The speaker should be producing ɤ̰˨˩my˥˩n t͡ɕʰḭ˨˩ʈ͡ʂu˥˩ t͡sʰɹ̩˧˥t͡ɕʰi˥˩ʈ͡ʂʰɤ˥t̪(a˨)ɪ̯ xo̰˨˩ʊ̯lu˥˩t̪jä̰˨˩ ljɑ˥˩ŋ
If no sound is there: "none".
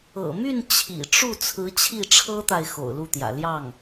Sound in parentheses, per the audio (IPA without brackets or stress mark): a˨